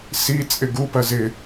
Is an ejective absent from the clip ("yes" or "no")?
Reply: no